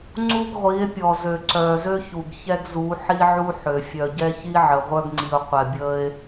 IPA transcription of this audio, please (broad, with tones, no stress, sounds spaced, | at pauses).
ŋ͡ǀ u˦ ɡ ʁʷ i˨˦ e̯ pʲ ɔ˨ z ø˨ ǀ œː˨ z ø˦ ç u˨ ɡ ç ɛ˦ ɡ z u˨˦ ħ i˦ ʕ u˦ ħ ø˨ fʲ œ˨ ɟ ɛ˦ ç i˦ ʕ ə˨ ʁʷ œ˦ ɡ ŋ͡ǀ i˨ o̯ qʷ ɛ˨ bʲ əː˦ e̯